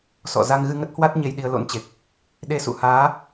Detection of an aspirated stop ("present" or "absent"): absent